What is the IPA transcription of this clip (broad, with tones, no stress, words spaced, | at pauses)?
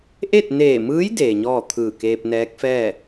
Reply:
ʔe˥˨t̚neː˧˩mɯː˧˥j deː˩ɲɔː˥˨ t̪ʰɯː˧˩keː˧p̚nɛː˧˥k̚fɛː˥˨